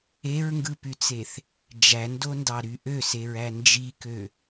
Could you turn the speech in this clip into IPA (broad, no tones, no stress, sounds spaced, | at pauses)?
e ɹ ŋ ɡ ɯ p y t͡s e θ | d͡ʒ æ n d o n d ɑ ɾ y ʔ ø s e ɹ æ n d͡ʒ i k ø